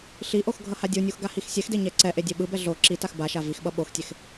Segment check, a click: present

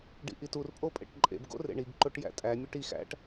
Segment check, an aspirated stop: absent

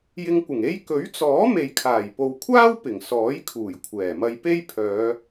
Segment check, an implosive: absent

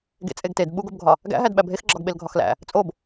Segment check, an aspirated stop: absent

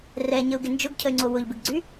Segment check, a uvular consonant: absent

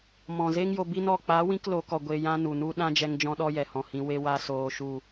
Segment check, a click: absent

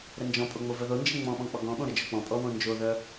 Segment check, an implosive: present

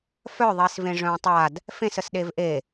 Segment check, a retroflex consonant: present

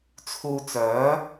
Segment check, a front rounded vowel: present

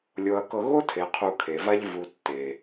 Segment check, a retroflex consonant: absent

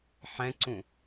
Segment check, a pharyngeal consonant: present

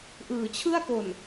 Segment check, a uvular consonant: absent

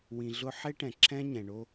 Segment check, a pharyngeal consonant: present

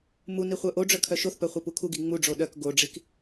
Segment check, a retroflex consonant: present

